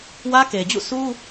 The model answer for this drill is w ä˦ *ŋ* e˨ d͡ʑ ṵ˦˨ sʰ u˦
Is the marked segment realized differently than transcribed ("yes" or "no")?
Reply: yes